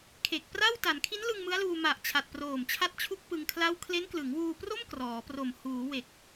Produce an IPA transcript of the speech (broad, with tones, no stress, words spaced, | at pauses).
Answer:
kʰe˨˩k̚pra˥˩w ta˩˦nkʰi˦˥nlɯ˧ŋ mɯ˦˥a̯luː˧ ma˨˩ʔ t͡ɕʰa˨˩t̚proː˨˩mt͡ɕʰa˦˥t̚t͡ɕʰu˦˥k̚ pɯ˧ŋkʰla˥˩w kʰle˦˥nklɯ˩˦ŋwuː˧pro˥˩m krɔː˩˦pro˨˩m huː˩˦we˨˩k̚